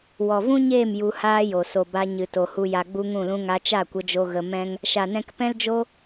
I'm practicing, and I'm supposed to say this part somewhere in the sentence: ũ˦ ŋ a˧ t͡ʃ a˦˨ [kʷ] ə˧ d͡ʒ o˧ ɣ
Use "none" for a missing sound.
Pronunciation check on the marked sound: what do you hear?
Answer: kʷ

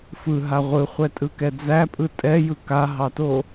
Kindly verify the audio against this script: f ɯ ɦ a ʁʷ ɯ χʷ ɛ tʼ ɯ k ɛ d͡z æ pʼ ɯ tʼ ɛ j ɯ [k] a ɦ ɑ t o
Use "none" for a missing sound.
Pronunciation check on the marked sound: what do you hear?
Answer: k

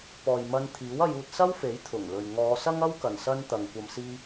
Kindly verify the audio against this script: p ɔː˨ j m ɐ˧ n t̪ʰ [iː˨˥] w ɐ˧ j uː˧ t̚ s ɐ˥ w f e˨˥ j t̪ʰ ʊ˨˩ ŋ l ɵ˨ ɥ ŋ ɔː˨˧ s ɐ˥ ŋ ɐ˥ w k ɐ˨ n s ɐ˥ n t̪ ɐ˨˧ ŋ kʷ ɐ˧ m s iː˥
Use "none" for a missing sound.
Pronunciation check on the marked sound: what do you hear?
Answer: iː˨˥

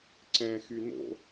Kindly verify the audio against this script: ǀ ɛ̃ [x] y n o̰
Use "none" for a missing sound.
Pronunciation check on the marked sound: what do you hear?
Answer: x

